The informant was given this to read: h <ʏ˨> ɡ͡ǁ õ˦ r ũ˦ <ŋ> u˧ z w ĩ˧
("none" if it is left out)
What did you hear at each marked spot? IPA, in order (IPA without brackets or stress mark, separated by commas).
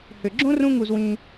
ʏ˨, ŋ